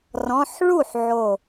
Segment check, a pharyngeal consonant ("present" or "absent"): present